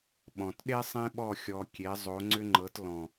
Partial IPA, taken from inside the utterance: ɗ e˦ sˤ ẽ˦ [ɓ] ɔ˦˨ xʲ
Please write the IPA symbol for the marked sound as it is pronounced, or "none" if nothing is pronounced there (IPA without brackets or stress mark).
ɓ